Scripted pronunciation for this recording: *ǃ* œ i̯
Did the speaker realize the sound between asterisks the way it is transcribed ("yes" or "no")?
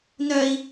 no